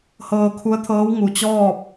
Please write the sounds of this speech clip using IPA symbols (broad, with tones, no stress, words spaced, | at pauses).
hɤː˧kʰu˧˥ə̯t̪ʰɤː˧˥w ŋu˩t͡ɕɔː˥˨p̚